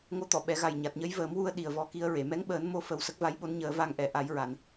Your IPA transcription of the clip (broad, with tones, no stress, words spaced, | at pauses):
ŋo˧˥t̪ɔ˨˩˨ ɓɛ˨˩˦ɣa˨˩j ɲa˨˩t̚ɲə˧˥jvəː˨˩˦mwu˧ə̯ ɗi˨˩ə̯vɔ˧˥ki˧˥ə̯ɹe˨˩˨ mɛ˧˥ŋɓəː˨˩˦n mo˧fə˨˩w sə˦˥k̚va˧˥jɓo˧˥nɲəː˨˩˦ va˨˩ŋʔɛ˨˩˨ ʔa˨˩˦jɹa˨˩˨n